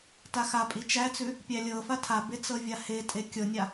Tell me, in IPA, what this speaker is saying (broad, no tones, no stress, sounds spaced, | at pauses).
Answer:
t a x a pʼ i t͡ʃ æ t͡s ʉ | pʲ æ lʲ ɤ f a tʰ a b e t͡s ɤ vʲ a h e tʼ e kʲ ɤ nʲ a